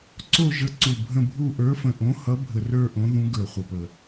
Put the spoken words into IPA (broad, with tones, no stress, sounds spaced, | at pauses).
ǀ o˦˨ ʒ ə˨˥ ǀ u˨˩ bʱ ə̃˦˨ bʱ u˦˨ ʔ ə˞˨˥ f ə̃˨˩ ʔ õ˨˥ h ʌ˨˥ bʱ ə˨˩ r ə˞˦˨ ʔ õ˨˥ ð ũ˨˥ ɡ ə˞˨˩ χʷ ə˨˩ p ə˨˩